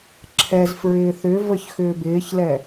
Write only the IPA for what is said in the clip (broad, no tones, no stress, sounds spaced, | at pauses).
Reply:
ǁʰ ɛ z f ɹ ɪː θ ʏ v ə ç x ʏː b ɪː ç l ɛ